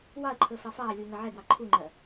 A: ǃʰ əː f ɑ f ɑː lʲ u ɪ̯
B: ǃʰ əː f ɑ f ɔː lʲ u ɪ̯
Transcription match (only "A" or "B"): A